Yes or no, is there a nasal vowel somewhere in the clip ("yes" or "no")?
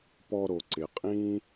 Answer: yes